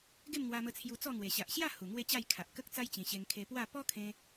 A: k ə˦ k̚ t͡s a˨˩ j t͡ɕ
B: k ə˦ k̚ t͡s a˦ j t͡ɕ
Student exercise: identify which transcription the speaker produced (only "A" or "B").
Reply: B